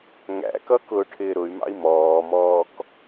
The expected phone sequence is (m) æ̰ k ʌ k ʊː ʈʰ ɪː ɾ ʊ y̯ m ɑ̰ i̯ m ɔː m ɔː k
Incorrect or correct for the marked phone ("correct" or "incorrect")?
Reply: incorrect